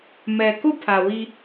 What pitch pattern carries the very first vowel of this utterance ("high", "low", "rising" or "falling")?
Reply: low